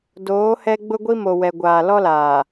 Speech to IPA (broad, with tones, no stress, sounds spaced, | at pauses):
d oː˨˦ h ɛ˦ ɡ͡b ʊ˦ ɡʷ i˦ m o˨ w ɛ˨ ɡʷ aː˨ l ɔ˦ l aː˨